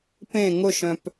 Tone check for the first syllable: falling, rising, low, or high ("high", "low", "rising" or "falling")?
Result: falling